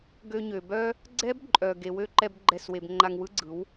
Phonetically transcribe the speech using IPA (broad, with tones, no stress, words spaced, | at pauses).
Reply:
ɡø˧ɲø˨bœ˦ | ɡ͡ǀɛ˦bǃʼœ˨ ɡe˨wø˦ ǃɛ˦bɡ͡ǃɛ˦˨swe˧b ŋ͡ǃa˧ŋwɯ˦ɡ͡ǀɯ˨˦w